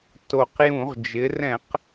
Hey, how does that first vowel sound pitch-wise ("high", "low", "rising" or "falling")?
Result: low